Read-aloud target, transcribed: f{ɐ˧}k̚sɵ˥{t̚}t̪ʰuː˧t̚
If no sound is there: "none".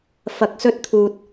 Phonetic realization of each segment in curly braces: ɐ˧, t̚

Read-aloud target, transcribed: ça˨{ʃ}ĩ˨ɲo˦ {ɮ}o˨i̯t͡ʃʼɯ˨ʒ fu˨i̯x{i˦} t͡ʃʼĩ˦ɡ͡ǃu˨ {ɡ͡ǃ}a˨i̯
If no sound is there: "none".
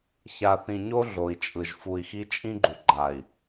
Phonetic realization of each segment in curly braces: θ, ɮ, i˦, ɡ͡ǃ

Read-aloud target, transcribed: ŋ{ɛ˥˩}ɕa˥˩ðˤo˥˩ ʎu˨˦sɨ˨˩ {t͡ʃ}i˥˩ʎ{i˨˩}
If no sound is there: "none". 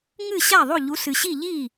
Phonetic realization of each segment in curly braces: ɨ˥˩, ɕ, i˥˩

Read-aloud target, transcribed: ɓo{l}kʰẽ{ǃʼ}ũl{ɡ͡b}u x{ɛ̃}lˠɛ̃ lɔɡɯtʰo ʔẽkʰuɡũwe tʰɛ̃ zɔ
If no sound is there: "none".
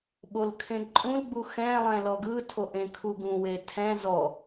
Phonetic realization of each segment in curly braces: l, ǃʼ, ɡ͡b, ɛ̃

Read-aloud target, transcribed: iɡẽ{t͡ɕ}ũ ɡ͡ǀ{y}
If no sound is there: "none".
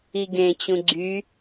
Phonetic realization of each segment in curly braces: t͡ɕ, y

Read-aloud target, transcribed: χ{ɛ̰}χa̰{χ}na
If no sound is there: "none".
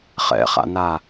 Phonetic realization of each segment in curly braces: ɛ̰, none

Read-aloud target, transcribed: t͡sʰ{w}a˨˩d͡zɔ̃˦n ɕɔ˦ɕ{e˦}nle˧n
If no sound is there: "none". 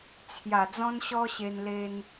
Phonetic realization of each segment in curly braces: j, e˧

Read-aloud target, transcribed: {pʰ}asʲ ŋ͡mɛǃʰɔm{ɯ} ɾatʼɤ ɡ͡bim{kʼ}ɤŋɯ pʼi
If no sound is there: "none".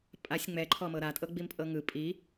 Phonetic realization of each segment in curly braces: pʼ, ɤ, pʼ

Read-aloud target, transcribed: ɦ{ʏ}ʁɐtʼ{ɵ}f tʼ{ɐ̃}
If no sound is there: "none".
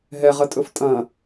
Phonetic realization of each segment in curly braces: ɛ, ɵ, ɐ̃

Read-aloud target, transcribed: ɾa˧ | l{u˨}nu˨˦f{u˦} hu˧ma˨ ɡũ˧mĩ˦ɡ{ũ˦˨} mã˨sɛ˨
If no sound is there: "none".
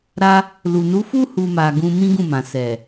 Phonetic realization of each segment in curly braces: u˨, u˦, ũ˦˨

